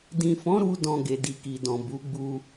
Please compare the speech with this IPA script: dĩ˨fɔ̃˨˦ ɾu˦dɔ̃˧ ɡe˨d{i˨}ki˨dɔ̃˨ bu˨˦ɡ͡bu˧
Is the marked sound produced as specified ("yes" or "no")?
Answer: yes